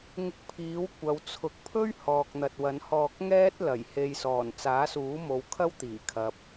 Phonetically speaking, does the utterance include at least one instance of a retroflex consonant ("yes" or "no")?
no